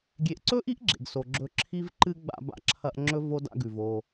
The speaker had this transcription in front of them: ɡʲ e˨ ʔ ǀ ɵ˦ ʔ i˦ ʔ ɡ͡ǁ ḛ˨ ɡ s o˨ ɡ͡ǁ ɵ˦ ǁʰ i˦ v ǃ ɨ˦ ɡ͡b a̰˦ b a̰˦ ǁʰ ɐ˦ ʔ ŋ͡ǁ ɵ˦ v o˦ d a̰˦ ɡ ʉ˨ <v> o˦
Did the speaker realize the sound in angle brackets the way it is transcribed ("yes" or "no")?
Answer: yes